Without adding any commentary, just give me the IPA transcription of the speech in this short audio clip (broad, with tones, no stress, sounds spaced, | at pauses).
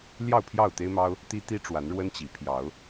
l j ɑ˥˨ ʊ̯ pʰ j ɑ˥˨ ʊ̯ t̪ e˦ ɪ̯ m ɑ˦ ʊ̯ | t̪ i˦ t̪ i˦ ʈ͡ʂ w a˨˦ n ɻ w ə˦ n t͡ɕ i˨˦ pʰ j ɑ˨˦ ʊ̯